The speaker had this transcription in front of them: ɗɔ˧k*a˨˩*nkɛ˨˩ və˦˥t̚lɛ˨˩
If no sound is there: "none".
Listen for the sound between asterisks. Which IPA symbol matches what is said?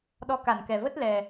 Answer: a˧˩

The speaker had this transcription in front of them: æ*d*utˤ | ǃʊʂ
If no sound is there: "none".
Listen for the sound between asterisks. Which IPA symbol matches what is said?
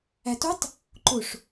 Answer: t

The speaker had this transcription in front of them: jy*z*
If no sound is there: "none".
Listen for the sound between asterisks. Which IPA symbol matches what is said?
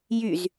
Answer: z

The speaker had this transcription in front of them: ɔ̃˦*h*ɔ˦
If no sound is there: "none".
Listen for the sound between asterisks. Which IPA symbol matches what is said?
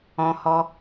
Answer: h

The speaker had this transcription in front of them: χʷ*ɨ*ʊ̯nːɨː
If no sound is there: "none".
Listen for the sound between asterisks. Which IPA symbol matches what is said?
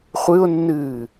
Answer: ɨ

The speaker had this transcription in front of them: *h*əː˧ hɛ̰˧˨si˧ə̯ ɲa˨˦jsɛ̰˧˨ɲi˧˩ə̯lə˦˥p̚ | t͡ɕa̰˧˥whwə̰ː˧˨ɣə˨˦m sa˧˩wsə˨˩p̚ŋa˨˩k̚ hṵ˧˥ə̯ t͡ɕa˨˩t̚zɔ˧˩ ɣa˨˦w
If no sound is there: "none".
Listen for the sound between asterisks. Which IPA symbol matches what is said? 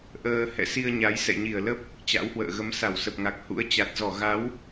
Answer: ʔ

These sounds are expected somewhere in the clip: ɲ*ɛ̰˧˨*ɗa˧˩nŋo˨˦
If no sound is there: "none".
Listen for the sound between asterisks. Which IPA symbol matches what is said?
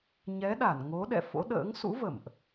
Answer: ɛ˨˦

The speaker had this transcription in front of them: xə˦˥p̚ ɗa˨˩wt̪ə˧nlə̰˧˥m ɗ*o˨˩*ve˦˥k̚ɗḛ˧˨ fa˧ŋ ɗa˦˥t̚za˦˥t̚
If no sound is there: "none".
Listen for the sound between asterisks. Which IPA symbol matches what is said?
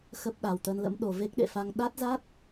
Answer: o˨˩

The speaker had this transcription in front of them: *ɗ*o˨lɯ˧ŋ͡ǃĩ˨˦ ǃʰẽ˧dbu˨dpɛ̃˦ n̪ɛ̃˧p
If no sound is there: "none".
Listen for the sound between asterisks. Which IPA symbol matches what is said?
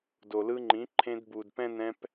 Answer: d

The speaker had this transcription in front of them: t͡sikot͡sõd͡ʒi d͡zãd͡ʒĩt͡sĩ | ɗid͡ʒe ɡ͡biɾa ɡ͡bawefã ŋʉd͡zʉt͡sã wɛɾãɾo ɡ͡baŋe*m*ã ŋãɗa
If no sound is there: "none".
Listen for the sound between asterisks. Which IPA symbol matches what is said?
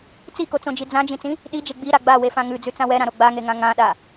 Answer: ŋ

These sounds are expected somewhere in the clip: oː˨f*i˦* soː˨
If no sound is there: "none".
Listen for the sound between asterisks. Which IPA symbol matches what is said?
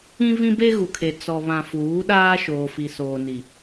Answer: i˨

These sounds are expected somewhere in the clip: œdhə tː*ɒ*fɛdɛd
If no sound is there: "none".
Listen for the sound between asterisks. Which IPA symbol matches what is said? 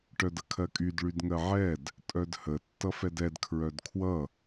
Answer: ʌ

